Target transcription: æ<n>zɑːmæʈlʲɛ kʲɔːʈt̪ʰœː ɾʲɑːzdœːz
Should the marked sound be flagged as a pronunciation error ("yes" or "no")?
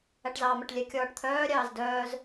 yes